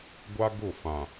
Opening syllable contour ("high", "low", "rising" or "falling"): high